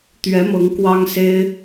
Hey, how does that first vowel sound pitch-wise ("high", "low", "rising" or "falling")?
rising